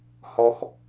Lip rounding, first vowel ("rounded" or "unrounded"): rounded